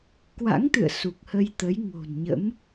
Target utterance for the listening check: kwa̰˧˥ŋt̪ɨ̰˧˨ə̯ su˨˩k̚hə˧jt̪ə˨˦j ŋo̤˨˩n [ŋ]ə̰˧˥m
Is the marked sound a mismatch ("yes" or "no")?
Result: yes